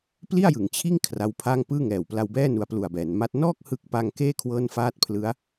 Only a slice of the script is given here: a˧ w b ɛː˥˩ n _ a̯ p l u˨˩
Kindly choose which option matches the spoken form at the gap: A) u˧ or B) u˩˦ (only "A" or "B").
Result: A